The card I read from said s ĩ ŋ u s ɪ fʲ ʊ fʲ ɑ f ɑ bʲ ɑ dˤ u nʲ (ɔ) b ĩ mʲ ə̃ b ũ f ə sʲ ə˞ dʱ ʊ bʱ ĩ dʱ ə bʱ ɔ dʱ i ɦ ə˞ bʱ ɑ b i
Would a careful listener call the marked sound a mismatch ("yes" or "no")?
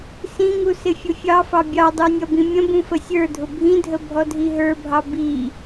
yes